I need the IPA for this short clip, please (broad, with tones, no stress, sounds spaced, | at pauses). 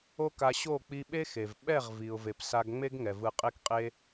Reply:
o˦ k a˧ ɕ o˦˨ k͡p i˧ ɓ e˦ x e˨ v ɓ ɛ˦˨ ʁ v i˨ ʊ̯ v e˨ p s a˧ ɡ ŋ͡m e˦ ɡ ŋ ɛ˨ v ɯ˨ qʼ e˧ k qʼ e˧